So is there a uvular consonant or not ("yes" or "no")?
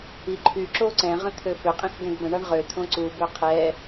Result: yes